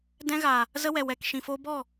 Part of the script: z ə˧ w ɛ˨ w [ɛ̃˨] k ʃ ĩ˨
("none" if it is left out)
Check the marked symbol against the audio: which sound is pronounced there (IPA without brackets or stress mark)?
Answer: ɛ˨